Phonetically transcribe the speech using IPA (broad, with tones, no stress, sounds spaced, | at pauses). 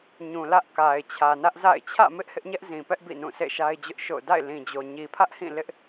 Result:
ɲ ũ˨ l ä˦ ʔ k a˨ ɪ̯ t͡ɕʰ ä˨ n ä˦ ʔ z a̰˦˨ ɪ̯ t͡ɕʰ ä̰˦˨ m ɪ˦ ʔ h ɪ˦ ʔ ɲ ɛ˦ ʔ z ĩ˨ p ɛ˦ ʔ b ḭ˦˨ n ũ˦˨ s ḛ˦˨ ʃ a˦ ɪ̯ d͡ʑ ʊ˦ ʔ ʃ o̰˦˨ ʊ̯ d a̰˦˨ ɪ̯ l ĩ˨ d͡ʑ o˨ ɲ i˨ pʰ ä˦ ʔ h ĩ˦˨ l ɪ˦ ʔ